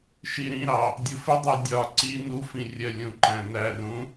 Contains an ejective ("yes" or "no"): no